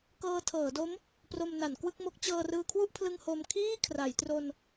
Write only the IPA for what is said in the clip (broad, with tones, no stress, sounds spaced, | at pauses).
k ɤː˧ tʰ ɤː˩˦ d o˦˥ m | p r o˧ m n a˩˦ n k w ɯ˥˩ k̚ m o˦˥ k̚ t͡ɕ ɤː˧ r ɯː˧ kʰ w u˥˩ ʔ pʰ l ɯ˧ ŋ h o˧ m kʰ iː˥˩ kʰ r a˩˦ j t r o˧ n